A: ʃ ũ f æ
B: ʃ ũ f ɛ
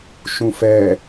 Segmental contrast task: B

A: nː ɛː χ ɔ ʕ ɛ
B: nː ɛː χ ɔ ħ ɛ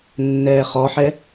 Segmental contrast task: B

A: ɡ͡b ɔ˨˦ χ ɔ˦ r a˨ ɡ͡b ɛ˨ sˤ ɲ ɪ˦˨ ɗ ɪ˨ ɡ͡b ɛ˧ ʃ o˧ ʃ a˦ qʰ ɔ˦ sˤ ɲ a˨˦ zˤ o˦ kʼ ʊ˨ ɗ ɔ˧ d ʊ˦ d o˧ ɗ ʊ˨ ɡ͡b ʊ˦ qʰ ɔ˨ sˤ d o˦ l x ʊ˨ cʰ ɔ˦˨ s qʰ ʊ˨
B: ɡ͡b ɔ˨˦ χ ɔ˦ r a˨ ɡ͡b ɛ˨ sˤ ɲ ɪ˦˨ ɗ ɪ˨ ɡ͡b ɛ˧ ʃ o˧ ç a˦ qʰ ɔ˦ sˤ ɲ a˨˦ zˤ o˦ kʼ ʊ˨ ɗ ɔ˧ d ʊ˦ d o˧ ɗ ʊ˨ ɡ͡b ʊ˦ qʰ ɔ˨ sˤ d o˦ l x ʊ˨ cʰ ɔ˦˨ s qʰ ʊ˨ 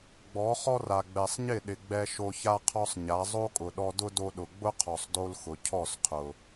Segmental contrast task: B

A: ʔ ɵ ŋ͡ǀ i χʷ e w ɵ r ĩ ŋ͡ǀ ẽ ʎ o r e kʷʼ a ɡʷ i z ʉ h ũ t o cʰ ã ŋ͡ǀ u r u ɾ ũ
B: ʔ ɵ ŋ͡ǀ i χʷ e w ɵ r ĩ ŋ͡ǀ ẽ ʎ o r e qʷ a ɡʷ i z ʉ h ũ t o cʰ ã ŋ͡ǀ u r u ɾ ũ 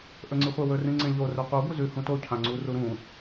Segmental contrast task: B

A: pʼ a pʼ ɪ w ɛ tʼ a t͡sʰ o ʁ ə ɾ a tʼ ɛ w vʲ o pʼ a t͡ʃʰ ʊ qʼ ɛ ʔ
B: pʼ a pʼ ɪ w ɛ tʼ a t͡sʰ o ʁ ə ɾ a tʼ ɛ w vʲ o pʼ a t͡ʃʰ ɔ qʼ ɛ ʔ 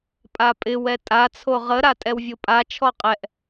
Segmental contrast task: B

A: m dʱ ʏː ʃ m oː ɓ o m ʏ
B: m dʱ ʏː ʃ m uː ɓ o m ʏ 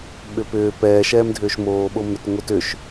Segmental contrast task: A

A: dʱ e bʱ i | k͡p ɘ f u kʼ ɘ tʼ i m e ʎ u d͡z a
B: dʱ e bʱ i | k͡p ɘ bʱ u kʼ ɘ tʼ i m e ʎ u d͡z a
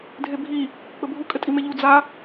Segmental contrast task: B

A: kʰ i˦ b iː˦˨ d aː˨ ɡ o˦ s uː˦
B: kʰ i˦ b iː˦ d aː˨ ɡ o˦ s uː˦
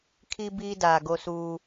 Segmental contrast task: B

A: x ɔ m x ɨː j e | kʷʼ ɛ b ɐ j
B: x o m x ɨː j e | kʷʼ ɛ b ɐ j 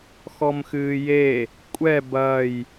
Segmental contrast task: A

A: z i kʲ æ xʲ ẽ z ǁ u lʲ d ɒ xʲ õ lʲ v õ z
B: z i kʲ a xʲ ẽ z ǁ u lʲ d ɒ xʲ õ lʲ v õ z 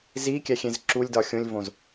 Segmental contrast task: A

